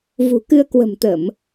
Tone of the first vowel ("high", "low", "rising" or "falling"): low